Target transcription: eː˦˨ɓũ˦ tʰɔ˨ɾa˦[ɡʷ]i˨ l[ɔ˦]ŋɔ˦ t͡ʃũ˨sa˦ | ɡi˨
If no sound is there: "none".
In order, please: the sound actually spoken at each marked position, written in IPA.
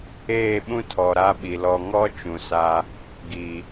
ɓ, ɔ˨

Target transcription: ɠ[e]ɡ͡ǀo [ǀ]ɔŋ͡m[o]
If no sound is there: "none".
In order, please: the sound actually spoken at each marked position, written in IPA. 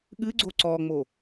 ɨ, ǀ, o

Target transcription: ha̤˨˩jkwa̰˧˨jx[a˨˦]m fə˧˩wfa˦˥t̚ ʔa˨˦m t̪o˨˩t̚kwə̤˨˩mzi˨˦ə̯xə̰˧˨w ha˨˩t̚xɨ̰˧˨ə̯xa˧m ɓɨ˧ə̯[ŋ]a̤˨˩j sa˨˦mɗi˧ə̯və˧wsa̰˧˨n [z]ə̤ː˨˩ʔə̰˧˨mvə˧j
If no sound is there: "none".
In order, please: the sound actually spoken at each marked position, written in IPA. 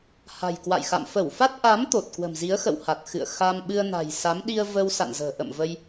a̰˧˨, n, z

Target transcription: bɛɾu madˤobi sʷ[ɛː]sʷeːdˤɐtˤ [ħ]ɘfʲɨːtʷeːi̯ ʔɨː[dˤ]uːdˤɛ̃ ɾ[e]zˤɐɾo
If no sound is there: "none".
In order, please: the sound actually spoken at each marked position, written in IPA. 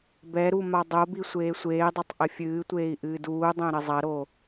eː, ʔ, d, ɘ

